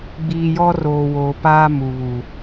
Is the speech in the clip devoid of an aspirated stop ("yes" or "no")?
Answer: yes